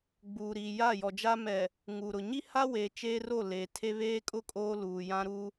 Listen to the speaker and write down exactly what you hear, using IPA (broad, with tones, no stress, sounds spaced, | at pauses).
ɡ͡b uː˨ ɾ iː˨ j a˦˨ j ɔ˨ d͡ʒ a˦ m ɛ˨ | ŋ uː˨ ɾ ʊ˨ ɲ i˦ h a˦ w eː˨ t͡ʃ eː˦ r o˦˨ l eː˨ tʰ e˦ β eː˦ kʼ ʊ˦ kʼ oː˦ l uː˨ j ã˦ ɾ u˦